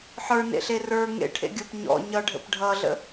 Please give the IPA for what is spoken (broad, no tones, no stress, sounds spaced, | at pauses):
ħ ə˞ n ḛ ɬ e r ə˞ ŋ ḛ ʈʰ ḛ ɡʲ ə˞ p ɲ ɔ̰ ɲ ʌ ɖʱ ə̰ p ɖʱ ʌ ɮ ə̰